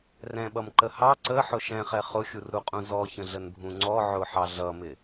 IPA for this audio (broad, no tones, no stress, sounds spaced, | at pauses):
r ɛ̃ ɓ ʌ m ǃ ə h ɑ ǀ ə ħ ʊ ʃ ɛ̃ χ ɛ χ ʊ xʲ u r ɾ u qʼ ũ z ɔ ç ə̃ ɮ ə n bʱ ũ ŋ͡ǀ ɔ ʕ ʊ ħ ɑ ɮ ʌ m ɪ